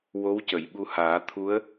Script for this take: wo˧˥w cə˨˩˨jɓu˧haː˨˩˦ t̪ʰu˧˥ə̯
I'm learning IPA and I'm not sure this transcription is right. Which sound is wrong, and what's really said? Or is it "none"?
none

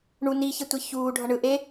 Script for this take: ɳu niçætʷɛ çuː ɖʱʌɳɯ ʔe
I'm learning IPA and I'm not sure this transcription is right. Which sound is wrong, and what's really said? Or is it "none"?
æ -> ɛ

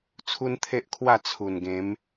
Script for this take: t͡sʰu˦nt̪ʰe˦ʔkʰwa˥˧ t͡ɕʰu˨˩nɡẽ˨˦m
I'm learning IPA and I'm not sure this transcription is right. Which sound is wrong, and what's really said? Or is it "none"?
t͡ɕʰ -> t͡sʰ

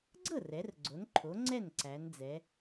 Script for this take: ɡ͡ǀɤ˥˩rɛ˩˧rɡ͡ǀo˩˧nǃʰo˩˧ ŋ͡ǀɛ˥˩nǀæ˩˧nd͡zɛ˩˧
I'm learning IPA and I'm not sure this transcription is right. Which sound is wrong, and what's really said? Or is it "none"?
none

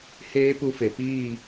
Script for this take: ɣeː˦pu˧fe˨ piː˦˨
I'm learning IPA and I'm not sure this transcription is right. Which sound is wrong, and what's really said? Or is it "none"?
ɣ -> h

